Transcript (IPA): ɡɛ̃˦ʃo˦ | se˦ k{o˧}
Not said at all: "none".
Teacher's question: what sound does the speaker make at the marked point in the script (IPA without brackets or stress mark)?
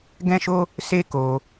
o˧